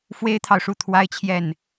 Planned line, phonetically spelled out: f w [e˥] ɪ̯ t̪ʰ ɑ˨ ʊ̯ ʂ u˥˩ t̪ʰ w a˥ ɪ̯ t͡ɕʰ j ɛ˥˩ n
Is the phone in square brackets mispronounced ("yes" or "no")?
no